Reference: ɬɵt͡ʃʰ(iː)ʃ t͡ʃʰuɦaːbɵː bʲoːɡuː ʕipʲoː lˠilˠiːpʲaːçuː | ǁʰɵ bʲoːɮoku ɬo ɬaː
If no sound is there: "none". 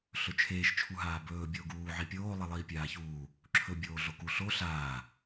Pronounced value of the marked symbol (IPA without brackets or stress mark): eː